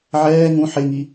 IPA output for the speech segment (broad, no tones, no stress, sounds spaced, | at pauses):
ʕ ɛː ŋ ũ ħ e ŋ i